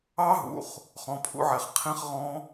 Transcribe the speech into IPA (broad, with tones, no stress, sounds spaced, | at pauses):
ɑ˦˥ ɦ ṵ˩˧˩ χ | χ ɔ̃˩˧˩ pʰ ṵ˦˥ ʕ ɛ˩˧˩ χ qʰ ĩ˦˥ χ ʁ ɔ̃˦˥